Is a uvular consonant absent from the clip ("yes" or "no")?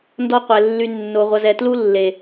no